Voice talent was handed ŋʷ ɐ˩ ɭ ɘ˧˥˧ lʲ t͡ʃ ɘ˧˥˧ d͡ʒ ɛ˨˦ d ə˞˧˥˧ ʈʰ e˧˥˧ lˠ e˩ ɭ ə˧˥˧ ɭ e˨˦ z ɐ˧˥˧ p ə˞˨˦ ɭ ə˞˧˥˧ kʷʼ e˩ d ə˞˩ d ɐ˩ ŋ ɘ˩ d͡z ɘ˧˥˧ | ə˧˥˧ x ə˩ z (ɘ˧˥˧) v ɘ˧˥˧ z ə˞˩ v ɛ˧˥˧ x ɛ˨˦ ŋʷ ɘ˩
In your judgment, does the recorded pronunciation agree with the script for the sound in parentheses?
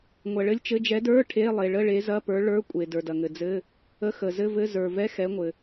yes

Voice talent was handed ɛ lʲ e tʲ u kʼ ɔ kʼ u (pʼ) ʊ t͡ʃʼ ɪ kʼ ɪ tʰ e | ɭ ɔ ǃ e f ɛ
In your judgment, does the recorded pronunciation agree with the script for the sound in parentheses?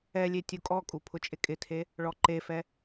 no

